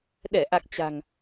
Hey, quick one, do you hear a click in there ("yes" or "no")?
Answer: no